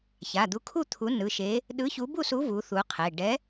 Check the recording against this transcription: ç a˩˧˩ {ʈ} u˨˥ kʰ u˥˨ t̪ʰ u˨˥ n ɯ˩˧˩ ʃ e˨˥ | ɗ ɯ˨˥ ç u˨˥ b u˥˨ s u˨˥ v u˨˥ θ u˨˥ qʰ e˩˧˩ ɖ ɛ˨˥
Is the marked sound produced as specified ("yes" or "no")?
no